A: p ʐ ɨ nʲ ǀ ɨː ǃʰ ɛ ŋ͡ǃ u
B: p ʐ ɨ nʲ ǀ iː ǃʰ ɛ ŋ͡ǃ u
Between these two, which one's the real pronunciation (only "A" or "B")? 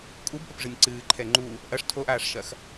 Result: A